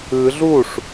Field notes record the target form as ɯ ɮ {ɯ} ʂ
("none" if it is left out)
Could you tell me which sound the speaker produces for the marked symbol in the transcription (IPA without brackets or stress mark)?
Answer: u